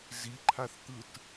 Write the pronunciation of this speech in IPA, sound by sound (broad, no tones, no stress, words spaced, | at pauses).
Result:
ziǃʰaθt̪ɯt